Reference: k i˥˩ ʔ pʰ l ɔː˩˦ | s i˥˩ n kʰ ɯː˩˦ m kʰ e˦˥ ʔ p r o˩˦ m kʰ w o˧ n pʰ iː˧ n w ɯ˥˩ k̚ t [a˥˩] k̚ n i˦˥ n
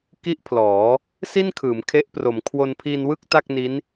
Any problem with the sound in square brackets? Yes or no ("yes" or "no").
no